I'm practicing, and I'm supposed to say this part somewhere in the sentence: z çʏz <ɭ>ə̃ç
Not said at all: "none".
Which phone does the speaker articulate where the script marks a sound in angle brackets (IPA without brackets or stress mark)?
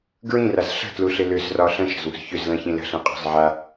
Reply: l